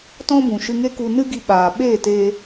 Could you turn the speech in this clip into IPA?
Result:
t ɔ̃˦ b ũ˨ ʃ ɨ˧ ŋ e˦ k u˧ n ɨ˦ ɡ i˧ ɓ aː˨ ɓ eː˦˨ t e˧

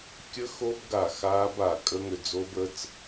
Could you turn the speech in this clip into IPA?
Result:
kʲ ə˦˥ x o˦˥ b ɡ a˧˩ x aː˦˥ b a˧˩ kʼ ə˦˥ ŋ ʏ˧˩ d͡z o˦˥ b ə˦˥ t͡s

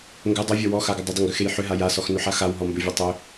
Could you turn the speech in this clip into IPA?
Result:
ŋ ɡ ʏ dˤ u vʲ ɔ w ɔ x a ɡ ʏ dˤ ʏ dˤ ʏ ŋ ɡ ʏ x e j ħ ʏ ɦ a j a s ɔ x n ʏ ħ a x a w ɦ ɔ m b ʏ vʲ o tˤ ʏ

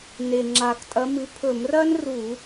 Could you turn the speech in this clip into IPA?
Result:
n e˨˩ ŋ͡ǁ a˨˩ k tʼ ɐ˨˥ m ɨ˨˥ pʰ ɵ˧˩˧ m r ɐː˥ n r uː˧˩˧

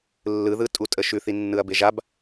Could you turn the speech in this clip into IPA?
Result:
lː ɯ ð ɯ tʼ u tʼ ə ʃ ʉ θ i nː ɯ ɐ̯ b e ʒ a b

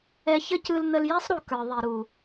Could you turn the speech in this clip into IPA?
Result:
ɛ˧ ç ə˦ c ɯ˧ l n̪ ə˧ l j ɛ˦ sˤ ɾ u˨ k ə˞˨ ðˤ i˨ ɾ u˨

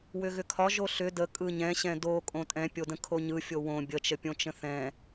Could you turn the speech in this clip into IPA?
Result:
w ʏ ɣ ʏ kʰ ɒ ʒ o ɬ ʏ d ə kʼ ɯ ɲ ɛ̃ ɕ ɛ̃ d o kʼ õ tʼ ɛ̃ pʲ o d ə̃ kʰ o ɲ ɯ fʲ o w õ bʲ ə t͡ʃ ə pʲ õ t͡ʃ ə̃ θ ɛ̃

